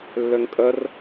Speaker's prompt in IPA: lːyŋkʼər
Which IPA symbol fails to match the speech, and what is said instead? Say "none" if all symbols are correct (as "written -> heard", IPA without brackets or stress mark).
y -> ø